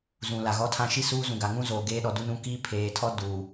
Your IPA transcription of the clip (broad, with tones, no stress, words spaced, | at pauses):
zũ˨la˨ɣɔ˦ tʰã˦ʃi˦ suː˦zũ˨ɡa˨ ŋũ˦zoː˨ɡeː˦ɗɔ˨ du˦nũ˦ ki˦pʰeː˨tʰɔ˦ duː˨